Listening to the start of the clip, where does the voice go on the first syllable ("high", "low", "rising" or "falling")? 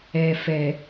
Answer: low